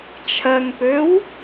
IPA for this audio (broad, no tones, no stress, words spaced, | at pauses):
t͡ʃʰɜŋpøw